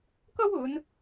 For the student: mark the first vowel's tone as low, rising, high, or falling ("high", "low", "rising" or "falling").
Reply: high